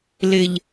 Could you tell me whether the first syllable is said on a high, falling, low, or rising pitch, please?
low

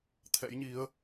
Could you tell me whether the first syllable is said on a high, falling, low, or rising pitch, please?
rising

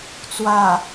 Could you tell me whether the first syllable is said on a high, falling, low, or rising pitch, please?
low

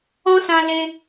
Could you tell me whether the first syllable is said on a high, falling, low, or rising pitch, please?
high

